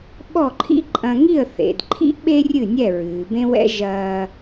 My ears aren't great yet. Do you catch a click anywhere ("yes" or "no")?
yes